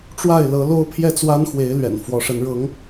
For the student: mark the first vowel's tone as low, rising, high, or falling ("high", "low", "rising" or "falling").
falling